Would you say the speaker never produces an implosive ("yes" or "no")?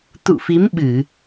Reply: no